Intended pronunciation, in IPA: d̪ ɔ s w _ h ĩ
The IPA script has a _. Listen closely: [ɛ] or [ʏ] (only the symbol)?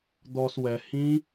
ɛ